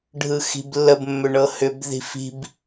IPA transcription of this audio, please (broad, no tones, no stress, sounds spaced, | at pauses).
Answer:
ɖʱ ɯ x i̤ b lː ə b mː ʏ ɳ ɤ h ʏ b ð i̤ f i̤ b